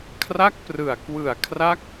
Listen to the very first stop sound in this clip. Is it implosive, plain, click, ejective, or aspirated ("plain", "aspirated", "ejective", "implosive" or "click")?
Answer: aspirated